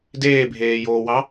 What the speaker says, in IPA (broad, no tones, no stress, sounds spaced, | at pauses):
d eː bʱ eː j oː w ɑ